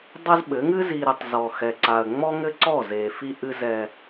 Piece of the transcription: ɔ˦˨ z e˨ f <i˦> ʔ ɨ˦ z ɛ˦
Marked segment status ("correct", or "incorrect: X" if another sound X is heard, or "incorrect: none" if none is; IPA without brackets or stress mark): correct